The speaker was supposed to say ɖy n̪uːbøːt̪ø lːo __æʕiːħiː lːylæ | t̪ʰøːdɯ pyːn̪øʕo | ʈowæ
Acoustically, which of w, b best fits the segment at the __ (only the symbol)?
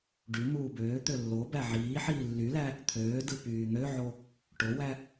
b